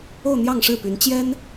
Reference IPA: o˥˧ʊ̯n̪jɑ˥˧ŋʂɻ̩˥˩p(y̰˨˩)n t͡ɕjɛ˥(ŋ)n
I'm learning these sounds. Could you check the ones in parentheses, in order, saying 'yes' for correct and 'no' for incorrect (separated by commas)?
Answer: no, no